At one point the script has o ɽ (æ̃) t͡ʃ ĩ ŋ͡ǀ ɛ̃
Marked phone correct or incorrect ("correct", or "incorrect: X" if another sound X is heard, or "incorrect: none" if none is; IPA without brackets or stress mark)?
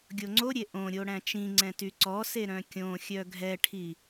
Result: correct